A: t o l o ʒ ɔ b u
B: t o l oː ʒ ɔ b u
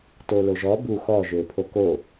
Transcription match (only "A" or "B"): A